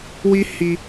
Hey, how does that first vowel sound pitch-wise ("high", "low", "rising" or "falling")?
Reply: high